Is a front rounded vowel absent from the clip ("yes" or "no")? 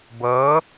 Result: yes